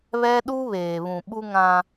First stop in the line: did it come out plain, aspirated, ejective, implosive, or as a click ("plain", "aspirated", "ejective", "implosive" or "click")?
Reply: implosive